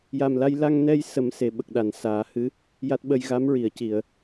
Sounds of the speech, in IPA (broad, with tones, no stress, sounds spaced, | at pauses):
j a˨˩ m l a˧ j l a˧ ŋ n ɛ˧ j s ə˨˩˦ m s e˨˩ ɓ ə˨˩ k̚ ɗ a˨˩˨ n s aː˨˩˦ h ɨ˧˥ | j a˦˥ t̚ ɓ ə˧ j ɣ a˧˥ m ɹ i˨˩˨ ə̯ c i˨˩˨ ə̯